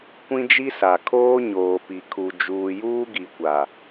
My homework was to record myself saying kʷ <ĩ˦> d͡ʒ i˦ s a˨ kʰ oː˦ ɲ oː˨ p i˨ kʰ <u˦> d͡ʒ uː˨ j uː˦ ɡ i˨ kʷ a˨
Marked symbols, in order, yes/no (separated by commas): yes, no